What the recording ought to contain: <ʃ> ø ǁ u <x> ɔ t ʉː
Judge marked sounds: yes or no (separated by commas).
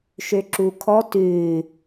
yes, no